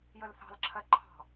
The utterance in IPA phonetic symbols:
jəlθɑ̤lǁʰɜ ǃʰɑ̤

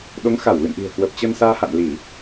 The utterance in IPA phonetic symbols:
ɗo˨˦ŋxa˧˩wlɨ̰˧˨nʔi̤˨˩ə̯ kwə˨˩p̚t͡ɕə˧nsaː˧ ha̰˧˨nli˧˩˨

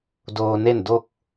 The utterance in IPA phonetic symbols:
doː˧ne˥˨ndo˥˨k̚

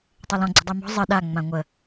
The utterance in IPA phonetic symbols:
tˤelɔ̃ ɡ͡ǀə̤dˤimɔ̤ zˤɘ ɗa ŋ͡mãŋʷə

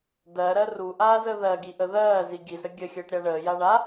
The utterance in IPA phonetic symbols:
d̪ɜɾɜ ruʔaːzə ðɜɡiʔə ðɜːzi ɡizɾə ɡʲəxʲəːʈɾʲa ɳəːja ɳa

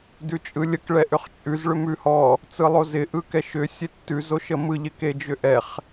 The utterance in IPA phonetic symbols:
dʉt͡ʃʼɯlʲək ɭɛʔʏχt͡ʃʼʉz ɭʏmʉhɔ | t͡sɯlˠozɪ ʔɯkɛʃʏ sʲetːʉz oʃəmɯ ʎɪked͡ʒʏʔɛχ

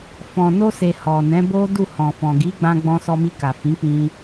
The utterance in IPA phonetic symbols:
fɔ̃˨no˧se˨ hɔ˨nɛ̃˨˦ bo˦du˦˨hɔ̃˨fɔ̃˨ ɡi˨˦ɡ͡bã˧ ɡ͡bɔ̃˧sɔ˧mi˧ ka˨fĩ˨˦k͡pĩ˧

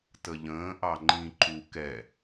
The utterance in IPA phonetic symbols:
təʎə̃ː ʔɑŋ͡ǃĩ ǃu kɛ

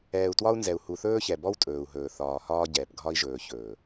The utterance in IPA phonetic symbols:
ɛː˨u̯twɒ˦u̯nzɛ˨u̯ hu˨θɵː˦çɛ˨ bɔ˦wtʼɵː˨u̯ɦɵː˨ θɒː˨hɒː˦ ɟɛː˨pɡʱɒ˦i̯ʒɵː˨ çɵː˨

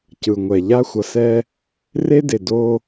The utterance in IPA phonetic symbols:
cɯ˨ŋʷɛ˨ʎa˦ xʷʌ˨sɛ˦ | re˦de˨do˦

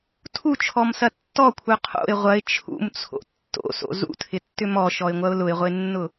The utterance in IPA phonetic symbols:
tʰut͡ʃʰɔmsɐ tːɔkʷʰœ qʰo̰ɪ̯ ʁʷɐɪ̯ t͡ʃʰṵmt͡sʰo̰ tːo̰so̰ zṵtʰɪtːʏ mɔʃɔɪ̯ŋʷɐʊ̯ lʊɪ̯ʁʷenːʊ

